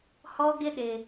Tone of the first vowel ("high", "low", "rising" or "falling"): high